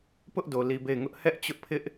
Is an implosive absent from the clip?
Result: yes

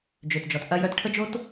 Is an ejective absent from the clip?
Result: yes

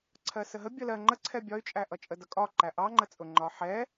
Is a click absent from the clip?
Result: no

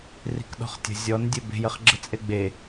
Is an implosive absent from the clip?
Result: no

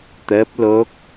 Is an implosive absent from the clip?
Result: yes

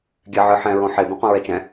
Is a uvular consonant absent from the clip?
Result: no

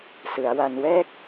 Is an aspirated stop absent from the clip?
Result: yes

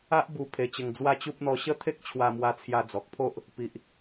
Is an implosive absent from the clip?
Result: yes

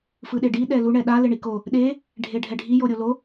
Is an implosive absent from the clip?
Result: no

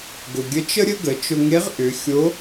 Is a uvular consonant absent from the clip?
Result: no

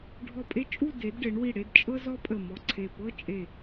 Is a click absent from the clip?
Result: no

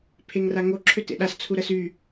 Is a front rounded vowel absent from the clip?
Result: no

